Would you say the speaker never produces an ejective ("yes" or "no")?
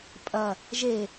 no